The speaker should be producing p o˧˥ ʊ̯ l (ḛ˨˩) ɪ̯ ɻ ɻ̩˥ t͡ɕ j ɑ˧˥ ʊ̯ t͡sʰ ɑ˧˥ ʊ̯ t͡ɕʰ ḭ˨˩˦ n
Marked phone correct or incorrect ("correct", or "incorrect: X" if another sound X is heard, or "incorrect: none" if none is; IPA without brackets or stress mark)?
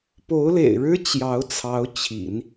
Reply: correct